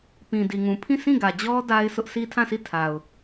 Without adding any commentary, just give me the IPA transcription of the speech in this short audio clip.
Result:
p ĩ˨ d i˨ ŋ ũ˨ pʰ ĩ˦˨ sʰ ĩ˦˨ ɡ ä˨ d͡ʑ ɔ˦ d a˦ ɪ̯ s ʊ˦ ʔ sʰ i˦ tʰ ã˦˨ s i˦˨ tʰ a˨ ʊ̯

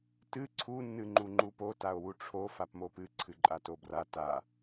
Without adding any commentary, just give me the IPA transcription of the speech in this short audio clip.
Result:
t ɨ ǀʰ u nː ɨ ŋ͡ǃ u ŋ͡ǃ u p o t a o̯ w u ʈ͡ʂʰ o f a p m o p ɨ ǀʰ ɨ ǃʼ a t o b r a t a

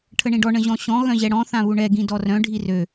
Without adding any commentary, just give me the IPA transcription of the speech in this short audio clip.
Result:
ʈʰ ə ɳ ĩ ɖ ɔ ɳ ə̃ ʑ ɔ̃ ɕ ɔ̃ ɣ œ̃ ʑ ɛ ɽ ɔ̃ θ ã β u ɳ ɛ ɡ ĩ d ɔ r œ̃ ɖʱ i r ø

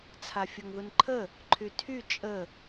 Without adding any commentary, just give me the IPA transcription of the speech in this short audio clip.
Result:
t͡sʰ a fʲ o ŋ ð u n ǃʰ ə | ǃʰ y tʰ y t͡ʃʼ ə

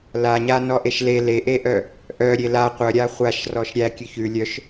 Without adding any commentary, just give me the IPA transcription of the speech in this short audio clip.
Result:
l a ɲ a n ɔ ʔ e ʃ l e l e ʔ e ʔ œ | ʔ œ ɾʲ e l a qʷ œ ɾʲ a χʷ a ʃ r ɔ ʃ ɾʲ æ kʲ ʉ ç ʉ lʲ œ ʃ

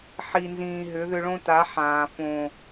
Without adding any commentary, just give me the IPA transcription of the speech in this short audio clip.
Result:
ħ i˨ n z ĩː˨ ɦ ʏ˨˦ ð ʏ˧ ɭ õ˦ t a˨˦ ħ ãː˨ f õ˨

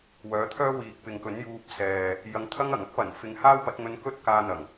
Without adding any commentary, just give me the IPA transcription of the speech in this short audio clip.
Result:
w œː˨˥ t̪ʰ œː˥ w iː˨ k̚ p ɪ˨ ŋ k ɵ˨˥ n j uː˧ p̚ s ɛː˨ | j ɐ˨˧ ŋ t̪ʰ ɐ˥ ŋ ɐ˨˩ ŋ ɐ˥ k̚ p ɐ˨˩ n f ɪ˨ ŋ h aː˥ w p ɐ˨˥ t̚ ŋ ɵ˧ n k ɵ˥ t̚ k aː˧ n̪ ɐ˨˩ ŋ

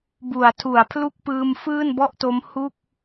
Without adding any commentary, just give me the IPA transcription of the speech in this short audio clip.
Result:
b u˩˦ a̯ tʰ u˩˦ a̯ pʰ l u˥˩ k̚ p ɯː˧ m f ɯː˥˩ n b ɔ˥˩ ʔ t o˦˥ m h u˥˩ k̚

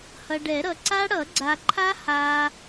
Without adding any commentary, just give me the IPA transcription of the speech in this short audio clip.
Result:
h ʌ˨ ɖ ɛ˨˩˦ ɾ ʌ˨ ǀ a˦˥ ɽ ʌ˨˩˦ ɡ͡ǀ a˨ ǃʰ a˦˥ h a˨

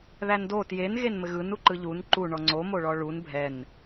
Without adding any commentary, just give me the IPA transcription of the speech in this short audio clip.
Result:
ð æ n d o t j e n ɣ e n m ɘ ɣ ɯ n u ǃ ɯ ʎ u n ǃ u ɳ ɔ ŋ͡ǀ o m o ɭ ɔ ɭ u n bʱ ɛ n

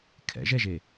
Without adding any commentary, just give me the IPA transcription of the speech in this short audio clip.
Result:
kʰ ɛ̰ ʒ ɛ ʒ e

